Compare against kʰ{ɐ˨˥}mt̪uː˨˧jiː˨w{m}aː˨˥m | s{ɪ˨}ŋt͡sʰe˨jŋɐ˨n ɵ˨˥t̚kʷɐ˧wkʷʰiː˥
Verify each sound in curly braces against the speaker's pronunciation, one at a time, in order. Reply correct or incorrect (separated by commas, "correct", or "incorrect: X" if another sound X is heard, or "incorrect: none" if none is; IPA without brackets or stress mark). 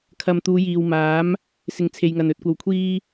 incorrect: ɐ˨, correct, correct